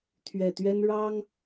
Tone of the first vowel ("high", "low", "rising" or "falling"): low